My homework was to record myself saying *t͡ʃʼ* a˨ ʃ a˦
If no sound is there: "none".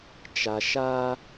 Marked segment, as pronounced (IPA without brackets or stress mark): t͡ʃ